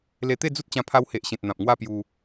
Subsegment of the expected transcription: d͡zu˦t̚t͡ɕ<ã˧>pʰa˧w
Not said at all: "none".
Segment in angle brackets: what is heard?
ã˧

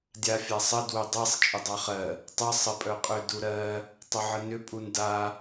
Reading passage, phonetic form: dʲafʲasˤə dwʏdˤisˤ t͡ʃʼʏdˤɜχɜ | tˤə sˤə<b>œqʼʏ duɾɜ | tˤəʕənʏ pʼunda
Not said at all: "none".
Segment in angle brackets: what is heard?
pʼ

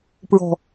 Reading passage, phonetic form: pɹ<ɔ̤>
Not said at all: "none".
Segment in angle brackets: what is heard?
ɔ̤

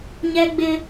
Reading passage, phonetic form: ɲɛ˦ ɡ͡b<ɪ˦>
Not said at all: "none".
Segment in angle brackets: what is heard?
ɪ˦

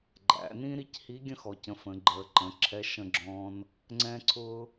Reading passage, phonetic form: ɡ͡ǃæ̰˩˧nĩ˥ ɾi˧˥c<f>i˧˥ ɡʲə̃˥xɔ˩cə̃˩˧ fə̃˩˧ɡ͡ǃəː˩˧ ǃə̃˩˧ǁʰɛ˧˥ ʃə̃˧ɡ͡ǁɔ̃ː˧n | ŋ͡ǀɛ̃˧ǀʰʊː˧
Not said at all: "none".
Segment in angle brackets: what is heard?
h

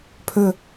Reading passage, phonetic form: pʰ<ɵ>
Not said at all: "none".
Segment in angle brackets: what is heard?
ɵ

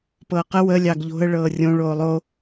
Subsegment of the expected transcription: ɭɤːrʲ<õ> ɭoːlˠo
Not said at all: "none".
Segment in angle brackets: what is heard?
õ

